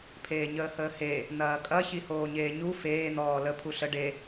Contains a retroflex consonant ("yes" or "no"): yes